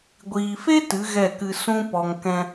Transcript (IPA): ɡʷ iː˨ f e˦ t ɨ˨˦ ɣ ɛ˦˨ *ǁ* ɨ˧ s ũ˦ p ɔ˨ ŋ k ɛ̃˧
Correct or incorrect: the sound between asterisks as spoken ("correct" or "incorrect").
incorrect